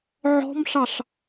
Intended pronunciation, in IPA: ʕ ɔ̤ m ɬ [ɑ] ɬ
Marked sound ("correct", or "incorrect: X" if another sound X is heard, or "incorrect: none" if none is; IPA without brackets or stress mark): correct